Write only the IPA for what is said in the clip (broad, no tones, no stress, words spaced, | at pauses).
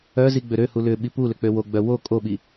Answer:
œzi ɡ͡bøɾøhu lʏ ɓipulʏ k͡pøwoɡ͡bœ wo kʼoɓi